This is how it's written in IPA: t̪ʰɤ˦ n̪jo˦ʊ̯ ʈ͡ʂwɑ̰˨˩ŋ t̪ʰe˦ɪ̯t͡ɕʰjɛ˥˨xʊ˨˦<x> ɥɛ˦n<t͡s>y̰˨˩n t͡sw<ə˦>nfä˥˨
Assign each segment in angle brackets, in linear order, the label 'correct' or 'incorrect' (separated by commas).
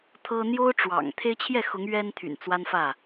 incorrect, incorrect, incorrect